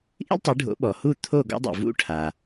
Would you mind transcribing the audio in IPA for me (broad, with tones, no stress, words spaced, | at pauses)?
ʔḭ˥ltˤi˩˥ɖʱo̰˩˥ ɓɔ˩hu˥˩t̪ʰo˥˩ ɡɔ̰˥dˤṵ˩ vṵ˥ʈʰa˩